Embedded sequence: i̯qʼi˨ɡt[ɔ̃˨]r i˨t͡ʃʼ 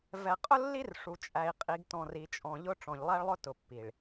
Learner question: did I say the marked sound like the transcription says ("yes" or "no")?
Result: yes